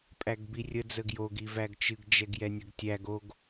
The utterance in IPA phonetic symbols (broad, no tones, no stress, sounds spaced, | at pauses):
pʼ æ ɡ b i rʲ ə d͡z ə ɡ j o ɡ i v æ ɡ t͡ʃ ɨ ɡ d͡ʒ ɛ ɡ j ɛ nʲ ə ɡ tʲ æ ɡ o ɡ